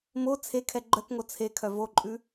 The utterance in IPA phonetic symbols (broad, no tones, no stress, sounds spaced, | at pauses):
m o t͡sʰ e kʰ ɛ ɡ͡ǃ œ k ŋ o t͡sʰ e kʰ œ v o ǃʼ ʉ